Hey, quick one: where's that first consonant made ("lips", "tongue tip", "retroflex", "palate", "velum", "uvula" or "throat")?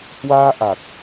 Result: throat